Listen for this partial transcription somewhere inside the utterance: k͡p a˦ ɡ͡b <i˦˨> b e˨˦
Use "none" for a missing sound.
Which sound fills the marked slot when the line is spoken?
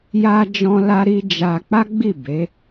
i˦˨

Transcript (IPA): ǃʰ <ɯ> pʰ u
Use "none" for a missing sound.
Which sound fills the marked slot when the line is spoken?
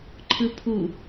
ɯ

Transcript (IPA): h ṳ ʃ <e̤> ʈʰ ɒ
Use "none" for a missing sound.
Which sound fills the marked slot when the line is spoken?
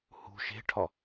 e̤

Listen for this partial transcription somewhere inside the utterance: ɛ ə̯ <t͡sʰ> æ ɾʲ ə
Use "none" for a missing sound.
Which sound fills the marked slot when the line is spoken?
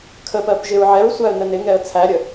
t͡sʰ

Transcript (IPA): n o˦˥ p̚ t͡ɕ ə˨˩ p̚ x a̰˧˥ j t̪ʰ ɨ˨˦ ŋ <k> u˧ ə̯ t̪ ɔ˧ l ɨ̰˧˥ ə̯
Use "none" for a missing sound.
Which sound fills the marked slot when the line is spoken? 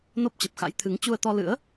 t͡ɕ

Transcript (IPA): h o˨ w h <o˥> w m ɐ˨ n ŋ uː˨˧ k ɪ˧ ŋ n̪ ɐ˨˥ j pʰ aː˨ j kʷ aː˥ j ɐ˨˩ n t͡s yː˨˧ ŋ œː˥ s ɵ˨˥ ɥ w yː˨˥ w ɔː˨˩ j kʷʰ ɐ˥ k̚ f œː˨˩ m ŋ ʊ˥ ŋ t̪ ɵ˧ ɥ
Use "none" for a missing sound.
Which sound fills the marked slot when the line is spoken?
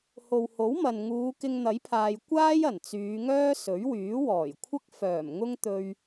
o˨˥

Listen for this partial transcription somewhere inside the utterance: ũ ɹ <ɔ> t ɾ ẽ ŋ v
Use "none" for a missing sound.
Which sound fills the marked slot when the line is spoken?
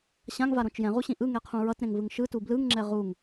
ʌ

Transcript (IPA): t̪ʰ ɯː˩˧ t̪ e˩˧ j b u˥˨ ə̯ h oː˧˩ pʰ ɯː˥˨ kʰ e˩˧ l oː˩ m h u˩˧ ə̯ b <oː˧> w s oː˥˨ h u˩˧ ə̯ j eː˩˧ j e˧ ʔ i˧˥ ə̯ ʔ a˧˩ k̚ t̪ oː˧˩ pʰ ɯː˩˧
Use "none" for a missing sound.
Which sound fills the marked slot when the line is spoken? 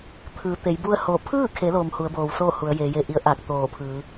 oː˩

